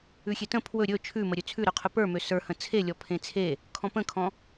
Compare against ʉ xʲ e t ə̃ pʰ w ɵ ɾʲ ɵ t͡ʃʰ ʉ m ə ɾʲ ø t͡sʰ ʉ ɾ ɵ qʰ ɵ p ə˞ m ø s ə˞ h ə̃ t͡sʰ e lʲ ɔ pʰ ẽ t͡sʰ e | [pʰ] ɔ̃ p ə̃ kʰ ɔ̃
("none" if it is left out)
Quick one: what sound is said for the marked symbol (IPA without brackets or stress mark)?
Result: kʰ